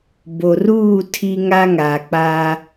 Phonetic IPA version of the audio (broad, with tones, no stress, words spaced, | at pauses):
bo˨ruː˦˨ tʰi˦ŋa˦ ŋa˨k͡pa˦